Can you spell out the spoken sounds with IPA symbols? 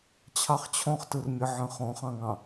t͡ɕʰ ɑ χ t͡ɕʰ ɔ̃ χ t ɯ r mʲ ə ʕ ə̃ χ ɔ̃ χ ɑ̃ ŋ ɑ̃

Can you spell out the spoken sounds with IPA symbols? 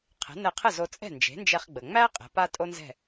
qʰ ɛ̤˩˥ n ɛ˧ qʰ ə˥˩ z o˧ t͡sʼ ɛ̤˥˩ n d͡ʒ e̤˩˥ n d͡ʒ ɛ˧ χ ɡ͡b ə˩ ŋ͡m æ˥ qʼ ɛ̤˩˥ p a˥ tʼ o˥ n z ɛ̤˥˩

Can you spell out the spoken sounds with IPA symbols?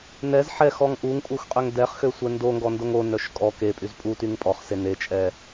n ɛ z ħ ɛ x ɔ ŋ ʔ u ŋ pʼ u x qʼ ø ŋ d ɛ χ x ø sʷ ɛ n d o ŋ ɡ ɔ n d o ŋ o n œ ʃ kʼ ɔ k e pʼ y z pʼ u t y ŋ pʼ ɔ χ s e n e t͡ʃʼ ɛ

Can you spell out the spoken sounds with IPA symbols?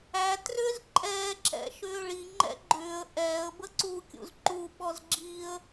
æ t r ʏː z ǃʼ ɛː ǁ ɛ̰ ʃ ʏː ɭ i ŋ͡ǃ ɛ̰ ɡ͡ǃ ʏː ə̯ ʔ ɛː ə̯ b ə ǀ u kʲ ṵ z ǃ u ɓ ɔ z ɡ͡ǁ iː ə̯

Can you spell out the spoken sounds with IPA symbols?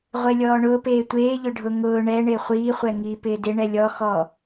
ʁʷ e lʲ ɔː ɳ ʊː p eː tʷ eː ʎ ʊ ɖʱ ʊ ŋ ʊː ɳ ɛ ɳ ɪː χʷ iː χʷ ɛ ŋ iː p ɪː d ɪ ɳ ɛ lʲ ɔ x ɔ

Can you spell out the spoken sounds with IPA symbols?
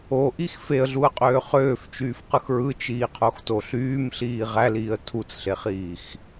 o ʔ i x f e ə̯ ɮ u ə̯ qʼ øː χ øː f t͡ʃ yː f q ɯ x ɹ ɯ t͡ʃ iː qʰ o x t o ɬ yː m ɬ iː ʁ æ l iː ə̯ tʰ u t͡s ɬ e χ iː x

